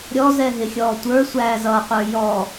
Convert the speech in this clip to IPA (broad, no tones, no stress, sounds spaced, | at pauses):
ɾʲ ɔ z ɛ ɦ ɪ xʲ ɔː tʷ ə˞ sʷ æː z ʌː qʷ ə˞ j ɔ